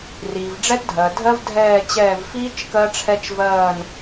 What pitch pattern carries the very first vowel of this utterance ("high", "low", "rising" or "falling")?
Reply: low